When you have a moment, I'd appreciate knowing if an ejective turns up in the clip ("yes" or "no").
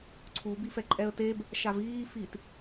yes